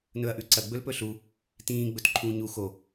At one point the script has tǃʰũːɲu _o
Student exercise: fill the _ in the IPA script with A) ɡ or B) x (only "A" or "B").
B